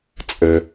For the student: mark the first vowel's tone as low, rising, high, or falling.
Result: high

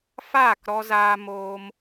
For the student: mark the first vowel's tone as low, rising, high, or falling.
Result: falling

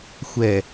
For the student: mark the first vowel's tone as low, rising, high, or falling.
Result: low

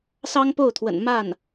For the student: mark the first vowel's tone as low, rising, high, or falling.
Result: high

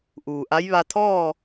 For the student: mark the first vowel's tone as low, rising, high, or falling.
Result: low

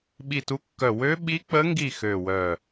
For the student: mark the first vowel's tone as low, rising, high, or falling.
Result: falling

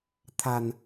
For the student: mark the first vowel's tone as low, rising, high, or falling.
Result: low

